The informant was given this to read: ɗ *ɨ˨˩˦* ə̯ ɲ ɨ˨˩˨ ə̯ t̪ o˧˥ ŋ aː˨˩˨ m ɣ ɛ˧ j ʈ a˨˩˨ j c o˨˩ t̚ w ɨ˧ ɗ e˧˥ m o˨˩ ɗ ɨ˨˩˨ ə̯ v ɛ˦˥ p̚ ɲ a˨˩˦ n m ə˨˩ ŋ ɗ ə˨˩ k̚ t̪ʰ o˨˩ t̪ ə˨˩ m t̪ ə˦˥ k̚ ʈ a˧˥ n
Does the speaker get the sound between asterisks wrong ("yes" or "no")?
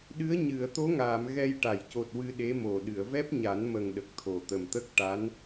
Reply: yes